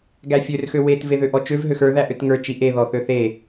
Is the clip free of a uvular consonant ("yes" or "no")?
yes